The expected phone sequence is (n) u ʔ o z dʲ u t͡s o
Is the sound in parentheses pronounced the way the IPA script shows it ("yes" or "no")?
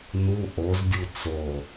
yes